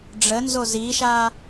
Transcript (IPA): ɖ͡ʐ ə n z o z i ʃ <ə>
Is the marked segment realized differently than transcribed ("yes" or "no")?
yes